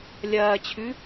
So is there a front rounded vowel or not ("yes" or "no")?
no